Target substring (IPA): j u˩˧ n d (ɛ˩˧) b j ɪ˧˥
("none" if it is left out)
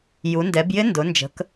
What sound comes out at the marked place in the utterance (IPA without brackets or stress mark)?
ɛ˩˧